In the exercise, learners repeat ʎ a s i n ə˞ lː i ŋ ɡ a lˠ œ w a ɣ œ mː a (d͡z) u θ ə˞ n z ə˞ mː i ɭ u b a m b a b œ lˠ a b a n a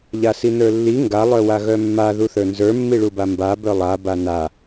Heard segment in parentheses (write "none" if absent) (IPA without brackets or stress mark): ð